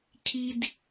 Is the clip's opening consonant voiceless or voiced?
voiceless